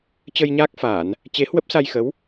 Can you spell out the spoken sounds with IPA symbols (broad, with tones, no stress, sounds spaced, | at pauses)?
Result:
t͡ɕ ə˧ j ɲ aː˦˥ k̚ f aː˧˩˨ n | t͡ɕ e˨˦ h w ə˦˥ p̚ s a˧ j x ə˨˦ w